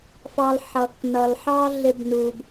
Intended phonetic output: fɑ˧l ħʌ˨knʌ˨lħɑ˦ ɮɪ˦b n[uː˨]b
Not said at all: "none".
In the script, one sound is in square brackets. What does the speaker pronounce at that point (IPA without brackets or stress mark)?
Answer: uː˨